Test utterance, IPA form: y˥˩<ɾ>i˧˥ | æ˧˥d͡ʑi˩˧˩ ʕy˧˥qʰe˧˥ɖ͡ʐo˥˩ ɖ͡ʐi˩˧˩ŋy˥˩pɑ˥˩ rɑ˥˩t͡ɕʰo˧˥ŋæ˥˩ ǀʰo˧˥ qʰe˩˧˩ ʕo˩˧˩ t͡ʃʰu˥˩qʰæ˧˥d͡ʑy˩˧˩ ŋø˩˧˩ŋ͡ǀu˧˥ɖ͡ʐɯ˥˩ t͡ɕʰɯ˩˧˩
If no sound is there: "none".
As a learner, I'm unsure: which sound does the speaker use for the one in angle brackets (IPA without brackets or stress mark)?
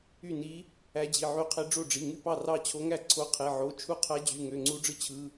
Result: n